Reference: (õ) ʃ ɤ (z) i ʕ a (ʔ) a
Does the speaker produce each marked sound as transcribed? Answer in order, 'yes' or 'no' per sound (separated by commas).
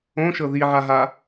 yes, no, no